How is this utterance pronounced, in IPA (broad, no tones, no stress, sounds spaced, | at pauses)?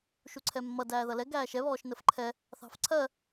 ʃ u ǀʰ ɛ mː ʌ d æː ð ʌ l ɛ ɡ æː ʃ ɛ β ɔː ʃ n ə f ǃʰ ɛ | θ ɑ̤ f ǀʰ ɜ